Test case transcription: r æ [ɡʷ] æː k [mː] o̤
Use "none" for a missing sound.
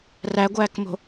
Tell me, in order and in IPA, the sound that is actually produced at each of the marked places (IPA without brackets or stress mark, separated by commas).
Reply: ɡʷ, m